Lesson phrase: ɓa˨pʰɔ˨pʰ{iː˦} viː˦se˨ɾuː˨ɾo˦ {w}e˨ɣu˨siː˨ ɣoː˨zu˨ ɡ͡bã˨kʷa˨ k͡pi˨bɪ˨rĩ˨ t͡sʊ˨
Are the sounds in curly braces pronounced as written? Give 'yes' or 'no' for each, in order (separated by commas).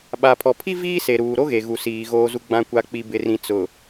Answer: no, no